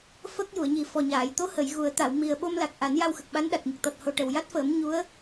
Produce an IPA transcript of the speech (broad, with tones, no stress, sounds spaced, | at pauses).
f ə˦˥ k̚ j u˨˩˨ ə̯ ɲ i˨˩ f ɔ˨˩ ɲ aː˨˩˨ j t̪ o˧˥ h ə˨˩˨ j ɣ u˨˩˦ ə̯ t̪ a˨˩˨ w m i˨˩ ə̯ ɓ o˧ m l a˨˩ k̚ ʔ a˨˩˦ n j a˧ w x ə˨˩ k̚ ɓ a˧˥ n ɗ a˨˩ t̚ ɲ ə˨˩ k̚ t̪ ɔ˨˩ t̚ h o˨˩ ʈ ə˨˩ w j a˦˥ t̚ f əː˨˩˦ m ɲ u˧˥ ə̯